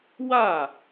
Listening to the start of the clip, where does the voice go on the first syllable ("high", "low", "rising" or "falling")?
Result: falling